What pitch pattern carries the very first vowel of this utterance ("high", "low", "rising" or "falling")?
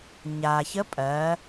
low